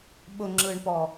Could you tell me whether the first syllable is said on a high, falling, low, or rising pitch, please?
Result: low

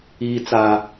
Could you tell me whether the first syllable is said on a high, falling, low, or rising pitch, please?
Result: high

